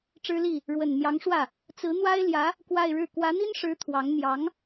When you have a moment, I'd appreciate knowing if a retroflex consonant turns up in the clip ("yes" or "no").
yes